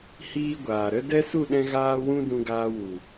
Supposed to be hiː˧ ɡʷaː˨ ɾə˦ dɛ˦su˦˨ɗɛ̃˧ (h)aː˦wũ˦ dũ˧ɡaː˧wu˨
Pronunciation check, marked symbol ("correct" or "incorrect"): incorrect